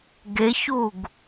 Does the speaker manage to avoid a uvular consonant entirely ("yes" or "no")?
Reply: yes